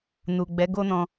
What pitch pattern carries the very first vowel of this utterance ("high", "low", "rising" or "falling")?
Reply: low